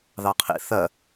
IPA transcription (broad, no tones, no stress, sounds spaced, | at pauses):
ð ɑ qʰ ḭ θ ɜ